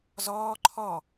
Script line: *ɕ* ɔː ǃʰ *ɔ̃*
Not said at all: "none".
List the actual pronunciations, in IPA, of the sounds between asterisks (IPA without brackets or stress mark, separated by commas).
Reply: z, ɔ